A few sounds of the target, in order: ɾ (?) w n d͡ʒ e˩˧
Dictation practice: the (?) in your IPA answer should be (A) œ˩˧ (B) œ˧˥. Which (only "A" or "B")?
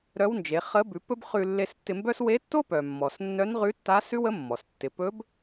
B